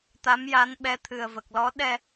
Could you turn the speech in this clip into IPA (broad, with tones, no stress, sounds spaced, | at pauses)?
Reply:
t̪ a˧˥ m j a˧˥ n ɓ ɛ˧˥ t̪ʰ ɨ˨˩ ə̯ v ə˨˩ k̚ l ɔ˧˥ ɗ ɛ˧